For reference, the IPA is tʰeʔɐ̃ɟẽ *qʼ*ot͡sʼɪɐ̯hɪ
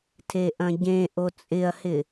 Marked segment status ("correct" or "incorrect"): incorrect